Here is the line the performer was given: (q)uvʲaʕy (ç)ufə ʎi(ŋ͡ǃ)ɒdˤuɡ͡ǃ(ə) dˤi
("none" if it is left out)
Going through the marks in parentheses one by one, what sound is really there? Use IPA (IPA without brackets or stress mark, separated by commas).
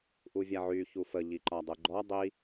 ʔ, ç, ǃ, ɔ